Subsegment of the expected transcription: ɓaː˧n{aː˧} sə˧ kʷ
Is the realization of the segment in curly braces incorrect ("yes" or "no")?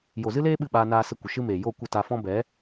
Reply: no